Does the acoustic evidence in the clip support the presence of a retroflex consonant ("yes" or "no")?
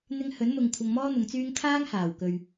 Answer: no